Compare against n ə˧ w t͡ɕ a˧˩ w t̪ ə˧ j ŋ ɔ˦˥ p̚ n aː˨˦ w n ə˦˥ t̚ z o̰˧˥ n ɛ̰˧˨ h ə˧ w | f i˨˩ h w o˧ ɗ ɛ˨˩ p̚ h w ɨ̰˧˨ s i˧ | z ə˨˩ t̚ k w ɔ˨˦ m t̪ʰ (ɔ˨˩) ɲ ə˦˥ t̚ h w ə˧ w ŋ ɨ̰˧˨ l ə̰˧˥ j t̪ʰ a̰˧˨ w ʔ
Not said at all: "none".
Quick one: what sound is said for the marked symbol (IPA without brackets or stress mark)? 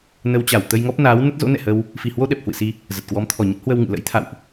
ɔ˨˩